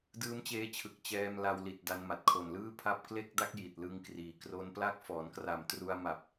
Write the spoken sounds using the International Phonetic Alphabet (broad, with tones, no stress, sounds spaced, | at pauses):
d ɯː˦˥ m t͡ɕ eː˦˥ t͡ɕʰ ɯ˨˩ k̚ t͡ɕ ɛː˧ m l a˧ w l i˨˩ t̚ d a˧ n m a˨˩ t̚ kʰ o˨˩ n l ɯː˥˩ pʰ a˥˩ p̚ k l e˥˩ k̚ d a˥˩ k̚ j i˨˩ t̚ l ɯ˧ ŋ k r iː˨˩ k r o˦˥ n p l a˥˩ k̚ f ɔː˩˦ n k r a˨˩ m t r u˧ a̯ m a˨˩ p̚